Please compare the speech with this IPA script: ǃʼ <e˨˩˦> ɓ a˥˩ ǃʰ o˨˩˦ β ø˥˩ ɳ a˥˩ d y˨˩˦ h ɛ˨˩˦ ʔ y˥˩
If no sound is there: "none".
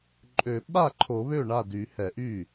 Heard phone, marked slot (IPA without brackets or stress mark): ø˨˩˦